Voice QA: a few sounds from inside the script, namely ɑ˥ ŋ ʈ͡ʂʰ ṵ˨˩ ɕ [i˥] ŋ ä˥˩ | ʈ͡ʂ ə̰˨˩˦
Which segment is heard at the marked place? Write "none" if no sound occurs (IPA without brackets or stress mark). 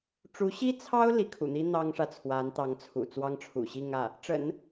i˥˧